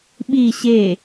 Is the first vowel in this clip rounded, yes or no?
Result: no